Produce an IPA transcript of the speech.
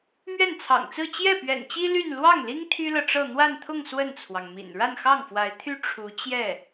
m ɥ ɛ˥˩ n t͡sʰ ɑ̰˨˩ ŋ t͡s ɹ̩˥˧ t͡ɕ j ɛ˥˩ p ɥ ɛ̰˨˩ n t͡ɕ i˥ l y˥˧ n l w ɑ˥˩ ŋ l i˥ ŋ t̪ʰ y˥ l ɤ˨ ʈ͡ʂ ɤ˥˧ n̪ w a˥˧ n t̪ʰ ʊ˥˧ ŋ s w ə˥˩ n t͡sʰ w ɑ˩ ŋ m ḭ˨˩ n ɻ a˥˧ n x ɑ˥˩ ŋ f w a˧˥ ɪ̯ t̪ʰ y˥ ʈ͡ʂʰ u˧˥ t͡ɕ j ɛ˥˩

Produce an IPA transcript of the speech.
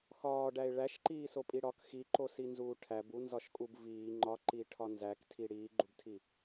x ɒː ɖ æ ɪ̯ ɭ æ ʃ ǃ iː s o pʼ i ɽ ɒ k x i ǃ o s i n z uː ʈʰ æ b u n z ɒ ʃ kʼ u b v iː ŋ͡ǃ ɒ ǃ i ʈʰ ɒ n z æ k tʰ i ɽ iː ɡ͡ǃ u b tʰ i

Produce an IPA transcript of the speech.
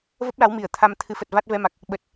v ə˦˥ p̚ l a˨˦ w m i˧˩ ə̯ t̪ʰ a˧ m t̪ʰ ɨ˨˦ f ə˨˩ t̚ v a˦˥ t̚ v ɛ˧ m a˨˩ k̚ | ɓ ə˨˩ t̚

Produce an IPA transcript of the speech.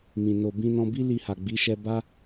m ĩ˨ n o˨ b ĩ˧ n ɔ̃˧ b i˦ l i˧ h a˨ ɡ͡b i˨˦ ʃ ɛ˧ b a˦

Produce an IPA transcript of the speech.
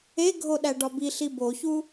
e ɡʱ o ɗ æ ɖ ɒ b i ɬ i b o ç u

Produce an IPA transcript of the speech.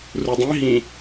r u dˤ ĩ ɦ ĩ

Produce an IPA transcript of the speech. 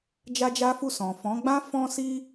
d͡ʒ a˦ d͡ʒ a˦ f u˦˨ s ɔ̃˨ f ɔ̃˨˦ ɡ͡b ã˦ f ɔ̃˦ s i˦

